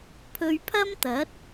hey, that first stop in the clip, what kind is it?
aspirated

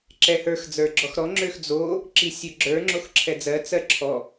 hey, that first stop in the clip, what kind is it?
click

